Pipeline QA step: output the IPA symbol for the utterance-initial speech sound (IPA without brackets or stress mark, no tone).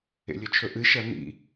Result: ḛ